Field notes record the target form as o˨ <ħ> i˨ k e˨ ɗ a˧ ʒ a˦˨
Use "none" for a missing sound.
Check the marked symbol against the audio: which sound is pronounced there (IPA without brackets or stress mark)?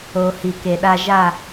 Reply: h